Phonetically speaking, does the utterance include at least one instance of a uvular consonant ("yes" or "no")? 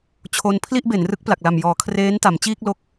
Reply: no